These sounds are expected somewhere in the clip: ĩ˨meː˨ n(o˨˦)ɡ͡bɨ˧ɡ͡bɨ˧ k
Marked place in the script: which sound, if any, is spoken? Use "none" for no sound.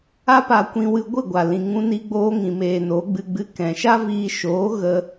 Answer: o˨˦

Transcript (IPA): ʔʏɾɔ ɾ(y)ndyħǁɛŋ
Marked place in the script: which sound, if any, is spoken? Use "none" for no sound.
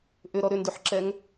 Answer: ʏ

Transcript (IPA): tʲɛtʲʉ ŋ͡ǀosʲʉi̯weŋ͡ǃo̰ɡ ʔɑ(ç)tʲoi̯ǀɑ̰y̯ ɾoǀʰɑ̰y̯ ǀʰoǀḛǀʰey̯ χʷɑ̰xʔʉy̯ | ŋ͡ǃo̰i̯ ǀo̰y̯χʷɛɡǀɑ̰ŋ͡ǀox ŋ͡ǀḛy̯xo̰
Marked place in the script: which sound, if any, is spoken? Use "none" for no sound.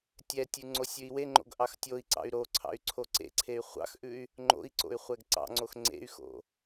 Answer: x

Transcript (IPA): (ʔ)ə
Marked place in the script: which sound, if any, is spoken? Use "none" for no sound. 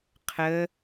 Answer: qʰ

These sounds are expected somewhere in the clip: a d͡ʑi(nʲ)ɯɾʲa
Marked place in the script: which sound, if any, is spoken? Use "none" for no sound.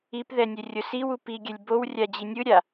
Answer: nʲ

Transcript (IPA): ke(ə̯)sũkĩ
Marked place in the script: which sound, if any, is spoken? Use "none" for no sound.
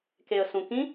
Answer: ə̯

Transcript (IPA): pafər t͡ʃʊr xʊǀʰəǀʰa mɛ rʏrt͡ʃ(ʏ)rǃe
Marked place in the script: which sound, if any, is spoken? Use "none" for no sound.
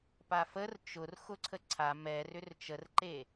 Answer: ə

